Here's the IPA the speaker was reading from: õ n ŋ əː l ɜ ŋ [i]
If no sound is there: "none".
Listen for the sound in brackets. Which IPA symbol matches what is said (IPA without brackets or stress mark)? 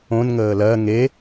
e